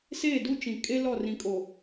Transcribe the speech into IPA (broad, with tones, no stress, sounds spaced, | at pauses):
s eː˦˨ d u˦ t͡ʃ ĩ˨ kʼ e˦ l ɔ˦˨ r ĩ˨ kʼ o˨